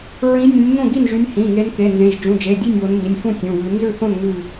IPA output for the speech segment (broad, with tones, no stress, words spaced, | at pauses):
ɹĩ˨˦ nʲõ˨˦nʲŋõ˥˨ɡi˥˨nʒy˨˦nʲ hĩ˩˧˩ ŋe˨˦n ke˩˧˩nzẽ˩˧˩ʒ d͡ʒũ˩˧˩d͡ʒe˩˧˩dʲe˥˨nʲ βo˨˦nmi˩˧˩nʲfũ˥˨ tʲũ˩˧˩βʉ˨˦ nzʉ˥˨θõ˥˨n ŋʉ˥˨